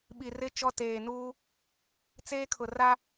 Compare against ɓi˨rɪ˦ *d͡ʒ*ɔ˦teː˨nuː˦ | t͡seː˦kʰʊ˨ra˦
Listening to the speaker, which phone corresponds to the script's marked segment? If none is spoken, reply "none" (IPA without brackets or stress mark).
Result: t͡ʃ